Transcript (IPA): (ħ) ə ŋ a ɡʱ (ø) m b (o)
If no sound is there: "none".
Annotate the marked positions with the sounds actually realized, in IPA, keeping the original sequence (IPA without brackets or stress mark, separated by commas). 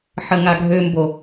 ħ, ø, o